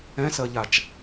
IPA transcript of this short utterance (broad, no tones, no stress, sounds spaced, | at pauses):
ɛ̃ s ɜ ʎ a t͡ʃ